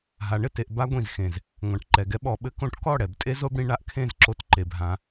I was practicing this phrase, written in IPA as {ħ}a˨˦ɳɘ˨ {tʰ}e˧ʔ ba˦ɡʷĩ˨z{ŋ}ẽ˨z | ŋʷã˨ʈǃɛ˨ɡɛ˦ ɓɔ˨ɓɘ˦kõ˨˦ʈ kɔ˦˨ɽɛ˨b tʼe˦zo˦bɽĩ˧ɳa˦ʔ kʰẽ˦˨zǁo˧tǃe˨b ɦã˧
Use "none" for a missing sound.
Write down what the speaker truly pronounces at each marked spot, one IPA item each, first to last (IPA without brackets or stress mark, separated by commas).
ɦ, t, x